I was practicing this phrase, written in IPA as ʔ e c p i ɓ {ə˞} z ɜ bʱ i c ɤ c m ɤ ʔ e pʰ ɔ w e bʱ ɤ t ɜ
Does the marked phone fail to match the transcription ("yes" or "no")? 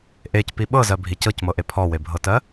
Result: yes